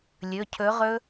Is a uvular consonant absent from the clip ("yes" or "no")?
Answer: no